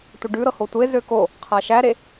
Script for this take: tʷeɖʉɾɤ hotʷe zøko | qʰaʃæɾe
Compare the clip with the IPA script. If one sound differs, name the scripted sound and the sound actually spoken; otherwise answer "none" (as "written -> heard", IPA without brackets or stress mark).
none